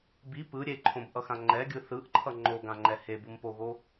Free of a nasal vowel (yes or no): no